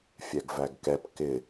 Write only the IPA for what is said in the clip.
fʲɛɡvæɡkɛp kɪ

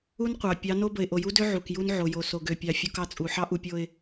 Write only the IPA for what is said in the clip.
u˦nqʷɑ˨ pʲɑ˨˦no˦ bə˨ɪ̯ʔo˨ju˦dø˦ ʕu˨kju˦n ʕo˨jo˨ so˨ɡø˨pʲɑ˨ fʲo˦kɑ˦t͡sʼu˨ ħɑ˦ʔu˨pʲo˨ɪ̯

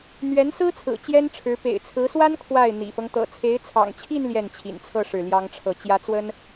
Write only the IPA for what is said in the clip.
n̪ɥɛ˧˥nsɹ̩˥t͡sʰɹ̩˨˩ t͡ɕjɛ˥nʈ͡ʂʰɻ̩˧˥ pḛ˨˩ɪ̯t͡sʰɹ̩˧˥swa˥n kʰwa˥˩ɪ̯ n̪ḭ˨˩fɤ˦ŋ t̪ɤ̰˨˩t͡sʰe˧˥ɪ̯t͡sʰɑ̰˨˩ŋt͡ɕʰi˥˧n ljɛ˥˩nt͡ɕʰḭ˨˩nt͡sʰɤ˥˧ ʂɻ̩˥˩ljɑ˥ŋʈ͡ʂʰɤ˥˩ t͡ɕjä˧˥ t͡swə˥n

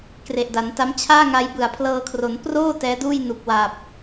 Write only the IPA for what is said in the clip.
kre˨˩ʔda˩˦nta˦˥m t͡ɕʰaː˥˩ŋa˧j bɯ˨˩a̯pʰlɤː˧kʰro˩˦n proː˥˩ tɛː˦˥duː˥˩jnu˨˩k̚ wa˨˩p̚

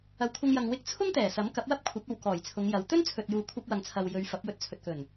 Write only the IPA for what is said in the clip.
ɐ˨wkʷʰɐ˧ŋjɐ˨ŋ wɪ˧k̚t͡sʰʊ˥ŋ t̪ɛː˨˩sɐ˨˥m kɐ˨˥p̚wɐ˥p̚ kʷʰɐ˨˥p̚ɐ˨w kɔː˨˩jt͡sʰʊ˨˧ŋjɐ˨˧w t̪ɵ˥nt͡sʰɵ˨t̚juː˨ kʷʰɐ˥p̚wɐ˧ŋt͡sʰɐ˧w jɵ˨˧ɥfɐ˨˥p̚ wɵ˧t̚t͡sʰɵ˨t̚kɵ˨˩n

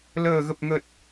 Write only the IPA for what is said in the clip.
ləː˨˩ɣə˨˩p̚ ŋə˨˩t̚

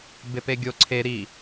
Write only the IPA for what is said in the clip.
bepeɡʲo ǀʰe ɾi

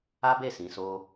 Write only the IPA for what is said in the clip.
a˦be˦˨ sĩ˨˦so˦

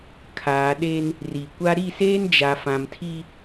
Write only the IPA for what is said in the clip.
kʰaː˨ ɗe˦n | ri˨kʷa˦ ɾi˦˨seː˦n d͡ʒa˨ fã˨mtʰi˦

